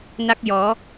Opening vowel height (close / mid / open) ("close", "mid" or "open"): open